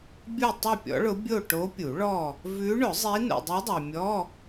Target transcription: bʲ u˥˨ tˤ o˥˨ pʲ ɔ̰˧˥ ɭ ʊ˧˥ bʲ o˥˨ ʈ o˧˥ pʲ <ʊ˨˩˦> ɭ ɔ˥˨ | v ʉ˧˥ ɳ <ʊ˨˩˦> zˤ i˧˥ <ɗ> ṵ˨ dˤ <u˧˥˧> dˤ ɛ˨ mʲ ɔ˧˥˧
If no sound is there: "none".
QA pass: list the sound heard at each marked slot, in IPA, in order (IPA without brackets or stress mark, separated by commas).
u˨˩˦, ʊ˨˩˦, n, u˧˥